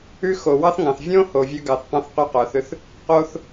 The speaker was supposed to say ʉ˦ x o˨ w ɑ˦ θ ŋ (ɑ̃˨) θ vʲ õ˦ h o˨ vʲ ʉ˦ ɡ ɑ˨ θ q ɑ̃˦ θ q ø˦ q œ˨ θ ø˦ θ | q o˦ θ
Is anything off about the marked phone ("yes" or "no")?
no